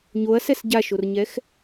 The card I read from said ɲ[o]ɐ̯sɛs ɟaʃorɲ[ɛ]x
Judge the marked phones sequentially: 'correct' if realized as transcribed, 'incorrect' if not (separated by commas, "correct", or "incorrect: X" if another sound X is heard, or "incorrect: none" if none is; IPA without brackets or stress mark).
correct, correct